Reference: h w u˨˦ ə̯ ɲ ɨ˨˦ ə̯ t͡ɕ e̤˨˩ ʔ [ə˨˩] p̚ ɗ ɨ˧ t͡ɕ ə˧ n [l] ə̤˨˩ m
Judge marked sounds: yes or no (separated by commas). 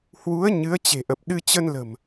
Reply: yes, yes